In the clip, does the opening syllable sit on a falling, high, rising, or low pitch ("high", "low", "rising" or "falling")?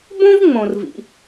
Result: high